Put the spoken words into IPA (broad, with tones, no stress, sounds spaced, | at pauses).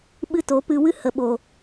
ɓ ɨ˦ t o˨˦ p ɨ˧ w ɨ˦ h ə˨ ɓ o˨